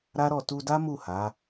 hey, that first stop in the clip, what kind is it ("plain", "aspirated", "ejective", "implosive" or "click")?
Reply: plain